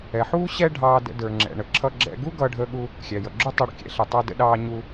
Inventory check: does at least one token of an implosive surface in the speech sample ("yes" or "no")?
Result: yes